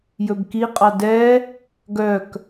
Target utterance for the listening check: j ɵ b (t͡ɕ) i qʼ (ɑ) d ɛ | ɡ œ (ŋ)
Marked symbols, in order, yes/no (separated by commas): no, yes, no